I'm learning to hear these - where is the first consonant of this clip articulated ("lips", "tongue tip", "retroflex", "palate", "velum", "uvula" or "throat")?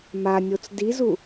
lips